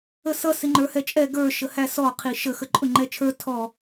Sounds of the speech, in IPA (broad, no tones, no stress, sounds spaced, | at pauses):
ə s ʌ s ɪ ŋ͡ǃ ə˞ h ɛ t͡ʃʼ ɛ ɡ ə˞ ʃ ə h æ s ɔ qʰ i ʃ ə x ə ǃʼ ʊ ŋ͡ǃ ɛ t͡ʃʰ ə˞ tʰ ɔ